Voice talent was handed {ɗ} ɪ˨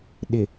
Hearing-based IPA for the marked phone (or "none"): ɗ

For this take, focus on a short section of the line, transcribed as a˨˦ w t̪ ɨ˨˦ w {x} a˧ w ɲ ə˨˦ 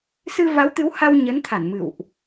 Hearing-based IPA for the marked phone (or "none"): h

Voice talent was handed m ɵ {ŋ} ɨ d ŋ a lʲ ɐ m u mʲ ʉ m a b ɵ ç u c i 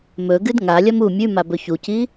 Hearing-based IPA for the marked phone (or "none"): ɡ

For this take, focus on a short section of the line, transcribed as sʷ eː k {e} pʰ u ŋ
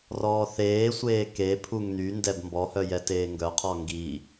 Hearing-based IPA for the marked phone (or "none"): e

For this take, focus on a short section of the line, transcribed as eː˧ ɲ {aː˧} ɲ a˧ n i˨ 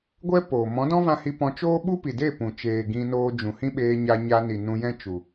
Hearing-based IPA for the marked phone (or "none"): a˧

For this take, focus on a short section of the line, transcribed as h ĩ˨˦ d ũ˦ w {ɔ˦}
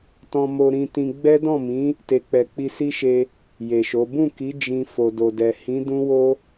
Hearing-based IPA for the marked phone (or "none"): o˦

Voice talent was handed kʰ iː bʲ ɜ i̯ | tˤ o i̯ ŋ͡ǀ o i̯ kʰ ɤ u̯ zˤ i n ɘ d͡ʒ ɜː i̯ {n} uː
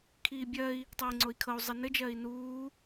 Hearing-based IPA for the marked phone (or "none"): n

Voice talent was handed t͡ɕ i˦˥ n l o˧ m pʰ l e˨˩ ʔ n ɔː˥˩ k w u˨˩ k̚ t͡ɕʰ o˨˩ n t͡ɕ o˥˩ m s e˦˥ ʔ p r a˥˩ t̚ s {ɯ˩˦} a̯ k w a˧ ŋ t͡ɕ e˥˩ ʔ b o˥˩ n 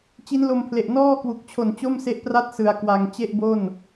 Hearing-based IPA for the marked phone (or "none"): ɯ˧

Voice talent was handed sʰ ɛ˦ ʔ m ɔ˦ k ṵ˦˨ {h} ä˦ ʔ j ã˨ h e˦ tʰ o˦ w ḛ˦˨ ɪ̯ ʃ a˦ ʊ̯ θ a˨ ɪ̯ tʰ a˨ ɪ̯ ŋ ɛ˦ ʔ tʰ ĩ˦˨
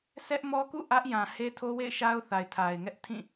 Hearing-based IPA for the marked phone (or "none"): ʔ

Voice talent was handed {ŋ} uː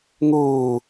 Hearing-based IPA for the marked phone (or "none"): ŋ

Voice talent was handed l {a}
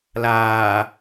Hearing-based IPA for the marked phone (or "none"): aː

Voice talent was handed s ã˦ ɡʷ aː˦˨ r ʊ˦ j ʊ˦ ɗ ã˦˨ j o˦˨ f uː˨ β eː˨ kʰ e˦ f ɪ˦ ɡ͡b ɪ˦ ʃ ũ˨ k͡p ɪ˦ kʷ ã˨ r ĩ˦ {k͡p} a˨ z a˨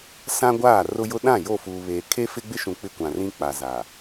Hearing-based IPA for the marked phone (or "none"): k͡p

